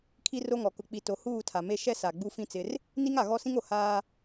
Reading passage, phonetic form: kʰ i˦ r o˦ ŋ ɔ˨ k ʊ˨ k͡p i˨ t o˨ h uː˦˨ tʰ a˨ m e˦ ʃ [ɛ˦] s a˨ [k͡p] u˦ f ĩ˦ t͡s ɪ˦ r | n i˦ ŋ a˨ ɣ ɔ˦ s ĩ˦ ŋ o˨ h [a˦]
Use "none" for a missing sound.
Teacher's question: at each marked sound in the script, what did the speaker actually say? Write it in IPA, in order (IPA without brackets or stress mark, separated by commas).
ɛ˦, ɡ͡b, aː˦